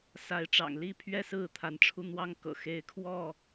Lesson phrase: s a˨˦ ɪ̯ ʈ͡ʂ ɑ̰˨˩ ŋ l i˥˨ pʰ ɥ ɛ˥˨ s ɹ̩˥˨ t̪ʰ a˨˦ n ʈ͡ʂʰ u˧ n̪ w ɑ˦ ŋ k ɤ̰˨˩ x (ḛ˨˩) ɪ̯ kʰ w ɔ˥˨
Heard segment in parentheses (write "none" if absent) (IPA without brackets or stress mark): e˨˦